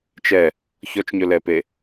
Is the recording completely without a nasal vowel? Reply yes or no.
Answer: yes